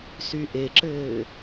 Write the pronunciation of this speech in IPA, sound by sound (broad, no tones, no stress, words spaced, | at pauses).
syʔeǁɘː